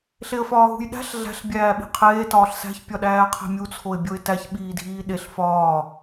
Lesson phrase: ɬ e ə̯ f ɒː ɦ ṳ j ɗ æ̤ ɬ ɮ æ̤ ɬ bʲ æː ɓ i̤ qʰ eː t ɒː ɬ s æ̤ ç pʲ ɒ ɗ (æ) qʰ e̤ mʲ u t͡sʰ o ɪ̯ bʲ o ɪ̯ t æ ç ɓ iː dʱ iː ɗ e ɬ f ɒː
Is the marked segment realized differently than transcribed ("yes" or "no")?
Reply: yes